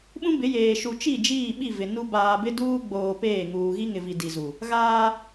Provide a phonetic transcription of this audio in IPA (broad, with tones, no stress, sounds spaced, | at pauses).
ɓ ũ˦ b ɪ˨˦ j eː˨ ʃ u˨ t͡ʃ i˦˨ d͡ʒ iː˦˨ ɓ i˦˨ v ɪ˨ n u˦ b aː˨ b ɪ˦ d uː˦ ɡ͡b oː˨ p eː˦˨ ŋ uː˨ ɣ i˦ ŋ ɪ˨ v i˨ d i˨ z u˨ | ɣ aː˦